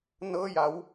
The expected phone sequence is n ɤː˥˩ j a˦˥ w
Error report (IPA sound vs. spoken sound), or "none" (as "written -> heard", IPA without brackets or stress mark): none